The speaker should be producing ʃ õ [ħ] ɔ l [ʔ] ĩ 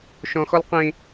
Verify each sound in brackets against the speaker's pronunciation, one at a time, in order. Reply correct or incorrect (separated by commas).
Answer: incorrect, incorrect